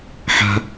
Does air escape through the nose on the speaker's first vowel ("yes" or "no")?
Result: no